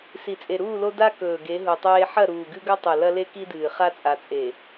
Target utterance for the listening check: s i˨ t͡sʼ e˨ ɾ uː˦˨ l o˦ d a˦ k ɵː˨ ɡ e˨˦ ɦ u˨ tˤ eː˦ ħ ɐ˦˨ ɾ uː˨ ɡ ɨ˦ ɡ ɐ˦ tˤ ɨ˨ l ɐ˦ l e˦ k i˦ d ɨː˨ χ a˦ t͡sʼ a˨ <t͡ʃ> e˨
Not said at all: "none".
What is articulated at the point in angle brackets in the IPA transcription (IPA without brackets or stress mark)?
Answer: t͡sʼ